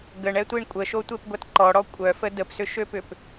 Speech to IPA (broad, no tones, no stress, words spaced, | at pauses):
ɡəɳɛtʷiɳ kʷʼəʃotʷepɡʷɐt ǃɔɽɔ kʷʼœfə dəpsʏʃøpʏp